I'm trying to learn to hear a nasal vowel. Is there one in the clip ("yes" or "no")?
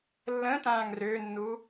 yes